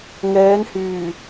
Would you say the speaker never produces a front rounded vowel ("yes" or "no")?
no